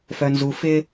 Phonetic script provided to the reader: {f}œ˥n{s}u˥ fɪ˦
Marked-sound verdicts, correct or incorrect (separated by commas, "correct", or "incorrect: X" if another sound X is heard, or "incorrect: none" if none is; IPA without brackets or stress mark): correct, incorrect: z